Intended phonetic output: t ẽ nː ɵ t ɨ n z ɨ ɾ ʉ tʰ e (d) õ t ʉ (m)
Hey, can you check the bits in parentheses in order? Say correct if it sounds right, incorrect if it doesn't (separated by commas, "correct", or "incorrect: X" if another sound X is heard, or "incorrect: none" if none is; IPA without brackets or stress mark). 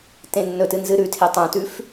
incorrect: tˤ, incorrect: f